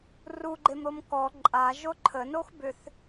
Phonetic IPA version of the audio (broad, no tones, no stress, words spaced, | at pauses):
ruɡ͡ǃemɾom kɔ ǃʼa ʒoǃʰənox bʏθ